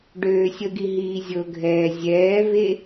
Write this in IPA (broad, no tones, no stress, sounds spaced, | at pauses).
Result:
ɖ øː sʲ ə ɡ i ɦ iː zʲ ɤ ɡʱ ɛː zʲ ɛː v e